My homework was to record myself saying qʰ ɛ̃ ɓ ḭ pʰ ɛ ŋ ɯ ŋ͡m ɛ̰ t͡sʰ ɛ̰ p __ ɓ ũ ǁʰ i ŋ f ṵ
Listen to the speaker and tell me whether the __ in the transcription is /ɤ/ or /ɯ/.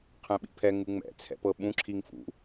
ɤ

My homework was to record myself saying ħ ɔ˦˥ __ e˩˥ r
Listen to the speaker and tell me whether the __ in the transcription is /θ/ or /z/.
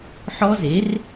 z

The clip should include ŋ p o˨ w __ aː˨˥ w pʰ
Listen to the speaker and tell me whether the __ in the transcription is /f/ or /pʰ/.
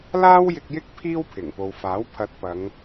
f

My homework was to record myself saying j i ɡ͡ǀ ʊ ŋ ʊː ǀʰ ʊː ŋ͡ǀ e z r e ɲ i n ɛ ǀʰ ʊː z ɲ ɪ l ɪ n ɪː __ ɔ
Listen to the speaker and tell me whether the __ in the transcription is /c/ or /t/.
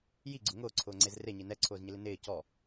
c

